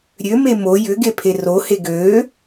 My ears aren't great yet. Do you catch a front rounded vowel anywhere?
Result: yes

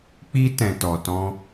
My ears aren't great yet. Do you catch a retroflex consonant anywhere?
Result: no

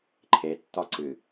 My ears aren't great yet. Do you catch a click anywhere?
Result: yes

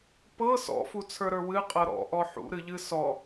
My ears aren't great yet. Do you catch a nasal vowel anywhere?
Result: no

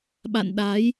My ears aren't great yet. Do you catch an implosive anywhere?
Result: yes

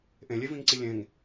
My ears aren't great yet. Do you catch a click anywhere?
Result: yes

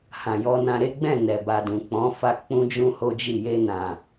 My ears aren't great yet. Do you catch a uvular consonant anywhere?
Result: no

